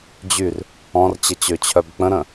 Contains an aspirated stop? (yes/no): yes